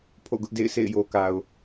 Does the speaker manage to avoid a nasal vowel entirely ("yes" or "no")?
yes